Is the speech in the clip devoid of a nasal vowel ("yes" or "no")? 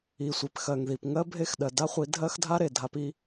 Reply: yes